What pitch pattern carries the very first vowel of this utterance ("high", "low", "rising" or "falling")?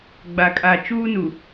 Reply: low